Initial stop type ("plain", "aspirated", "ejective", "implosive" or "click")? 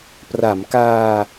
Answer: plain